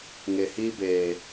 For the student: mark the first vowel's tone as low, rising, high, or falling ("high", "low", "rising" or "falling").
low